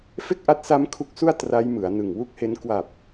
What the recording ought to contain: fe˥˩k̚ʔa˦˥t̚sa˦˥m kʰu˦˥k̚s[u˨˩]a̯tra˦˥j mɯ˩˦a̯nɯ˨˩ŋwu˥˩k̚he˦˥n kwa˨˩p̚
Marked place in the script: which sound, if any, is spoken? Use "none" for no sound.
u˥˩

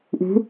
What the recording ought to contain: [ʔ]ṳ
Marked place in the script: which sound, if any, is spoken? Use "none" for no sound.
ʔ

